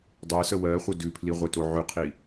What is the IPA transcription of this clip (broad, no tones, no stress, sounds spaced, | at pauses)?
dˤ e s ə w ɜ χʷ ə d ʉ pʰ l i ʁʷ e t o ʕ ʉ qʰ i